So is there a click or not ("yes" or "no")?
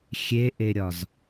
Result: no